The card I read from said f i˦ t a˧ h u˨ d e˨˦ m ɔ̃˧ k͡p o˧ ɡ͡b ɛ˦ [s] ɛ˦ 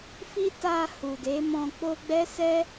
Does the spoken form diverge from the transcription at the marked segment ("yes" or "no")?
no